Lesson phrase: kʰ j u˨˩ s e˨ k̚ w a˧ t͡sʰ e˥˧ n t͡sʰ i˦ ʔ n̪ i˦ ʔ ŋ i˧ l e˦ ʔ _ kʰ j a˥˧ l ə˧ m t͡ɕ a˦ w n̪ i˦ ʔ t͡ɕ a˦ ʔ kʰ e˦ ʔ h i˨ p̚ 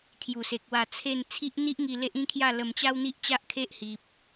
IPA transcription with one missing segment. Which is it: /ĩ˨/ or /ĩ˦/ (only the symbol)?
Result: ĩ˦